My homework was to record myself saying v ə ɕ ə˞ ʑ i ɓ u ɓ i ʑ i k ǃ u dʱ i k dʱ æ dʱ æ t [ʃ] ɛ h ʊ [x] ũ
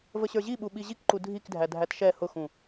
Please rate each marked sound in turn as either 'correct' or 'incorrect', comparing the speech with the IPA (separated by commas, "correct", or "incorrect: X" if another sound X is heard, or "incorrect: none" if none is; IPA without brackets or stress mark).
correct, correct